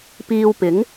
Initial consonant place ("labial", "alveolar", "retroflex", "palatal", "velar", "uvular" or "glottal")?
labial